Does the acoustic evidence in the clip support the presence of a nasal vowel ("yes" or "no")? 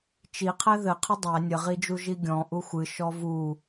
yes